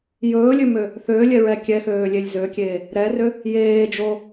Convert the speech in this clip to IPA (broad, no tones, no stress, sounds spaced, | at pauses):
j ɵː lʲ ø m ø | θ øː lʲ ɛ ɹ ɛ kʲ ɛ x øː lʲ e lʲ z ø kʲ eː | ɾ ɛ r ø | j eː d͡ʒ o